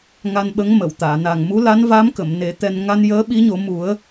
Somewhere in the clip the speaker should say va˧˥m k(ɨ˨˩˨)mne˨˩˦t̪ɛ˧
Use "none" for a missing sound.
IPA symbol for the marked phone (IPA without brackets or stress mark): ə˨˩˨